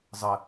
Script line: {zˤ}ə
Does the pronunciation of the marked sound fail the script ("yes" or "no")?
no